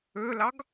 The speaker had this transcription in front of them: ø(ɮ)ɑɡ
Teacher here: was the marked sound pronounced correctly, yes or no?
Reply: no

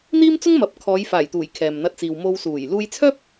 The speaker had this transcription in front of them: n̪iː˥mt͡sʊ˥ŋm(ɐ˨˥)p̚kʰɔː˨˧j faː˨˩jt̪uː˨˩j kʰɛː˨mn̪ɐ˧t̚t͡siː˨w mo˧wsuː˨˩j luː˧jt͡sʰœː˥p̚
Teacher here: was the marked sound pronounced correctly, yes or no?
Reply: yes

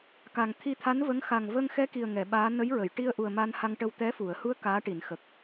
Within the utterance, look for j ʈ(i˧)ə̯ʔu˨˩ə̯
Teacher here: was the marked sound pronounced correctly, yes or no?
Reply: yes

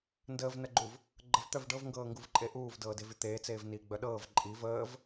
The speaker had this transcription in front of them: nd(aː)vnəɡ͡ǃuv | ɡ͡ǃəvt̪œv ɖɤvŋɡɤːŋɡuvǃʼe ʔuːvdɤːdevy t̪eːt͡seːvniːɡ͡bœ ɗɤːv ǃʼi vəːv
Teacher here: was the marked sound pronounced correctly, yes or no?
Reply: no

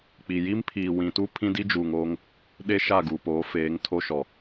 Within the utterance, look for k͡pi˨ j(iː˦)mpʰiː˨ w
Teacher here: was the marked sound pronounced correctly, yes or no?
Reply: no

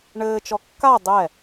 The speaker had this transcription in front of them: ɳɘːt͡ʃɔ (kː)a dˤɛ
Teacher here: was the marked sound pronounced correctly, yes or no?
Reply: yes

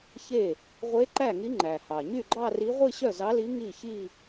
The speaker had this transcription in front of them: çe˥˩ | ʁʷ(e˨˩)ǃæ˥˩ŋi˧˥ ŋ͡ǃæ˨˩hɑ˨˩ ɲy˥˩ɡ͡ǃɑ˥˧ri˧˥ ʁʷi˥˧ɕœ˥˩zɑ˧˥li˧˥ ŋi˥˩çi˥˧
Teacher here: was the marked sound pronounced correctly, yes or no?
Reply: no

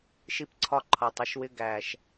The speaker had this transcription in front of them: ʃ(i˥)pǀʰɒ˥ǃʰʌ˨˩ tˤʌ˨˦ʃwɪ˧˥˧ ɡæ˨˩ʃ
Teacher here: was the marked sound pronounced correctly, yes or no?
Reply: yes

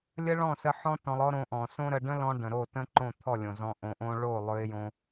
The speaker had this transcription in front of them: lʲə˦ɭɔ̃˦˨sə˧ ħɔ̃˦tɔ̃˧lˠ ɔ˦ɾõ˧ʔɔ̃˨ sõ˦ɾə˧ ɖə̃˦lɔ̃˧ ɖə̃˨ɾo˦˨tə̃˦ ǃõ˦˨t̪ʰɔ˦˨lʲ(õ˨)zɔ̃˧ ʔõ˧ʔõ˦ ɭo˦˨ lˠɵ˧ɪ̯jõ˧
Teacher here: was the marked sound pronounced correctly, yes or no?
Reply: yes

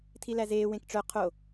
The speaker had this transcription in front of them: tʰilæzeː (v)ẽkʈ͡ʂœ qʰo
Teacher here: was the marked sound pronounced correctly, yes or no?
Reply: no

